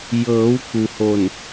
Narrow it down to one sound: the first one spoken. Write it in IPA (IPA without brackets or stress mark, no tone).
j